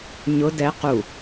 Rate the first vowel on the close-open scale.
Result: close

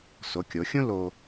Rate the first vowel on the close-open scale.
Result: mid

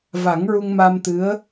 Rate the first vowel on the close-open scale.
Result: open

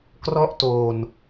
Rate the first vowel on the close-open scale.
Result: mid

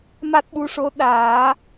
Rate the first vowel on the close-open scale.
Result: open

